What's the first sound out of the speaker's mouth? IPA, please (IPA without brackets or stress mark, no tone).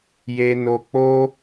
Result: j